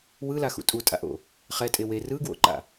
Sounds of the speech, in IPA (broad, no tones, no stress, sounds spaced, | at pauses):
w ɯ l a x ṵ tʼ u tʼ a̰ ʔ o̰ | χ ɛ tʼ e w e r ɯ ɡ w o̰ ǃ a̰